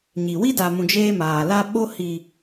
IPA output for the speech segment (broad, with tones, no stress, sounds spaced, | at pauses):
ɲ i˨ w i˦ d a˨ m ũ˨ d͡ʒ eː˦ m aː˨ l a˦ ɓ o˦ h i˨